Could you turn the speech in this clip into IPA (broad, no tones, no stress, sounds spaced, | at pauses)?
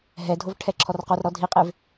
ɦ ɛ dʱ o v ʈʰ ɛ ǁʰ ɔ r q o r ɾ ɔ dʱ i qʼ e v